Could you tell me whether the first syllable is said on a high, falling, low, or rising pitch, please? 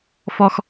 high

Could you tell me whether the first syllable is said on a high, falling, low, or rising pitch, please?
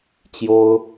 high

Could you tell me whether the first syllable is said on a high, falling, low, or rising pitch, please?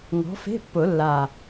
rising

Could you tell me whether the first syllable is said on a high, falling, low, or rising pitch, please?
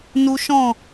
high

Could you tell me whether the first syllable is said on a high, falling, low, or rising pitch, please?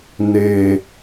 low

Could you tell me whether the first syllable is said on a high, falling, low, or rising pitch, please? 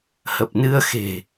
low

